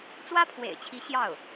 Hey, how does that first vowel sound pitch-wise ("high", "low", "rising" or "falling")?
high